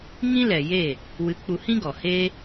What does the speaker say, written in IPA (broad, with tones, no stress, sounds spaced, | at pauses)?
ŋ ĩ˦ l ɛ˨ j e˦˨ | w ɨ˨˦ k͡p u˧ h ĩ˦ ɡ ɔ˨ h e˦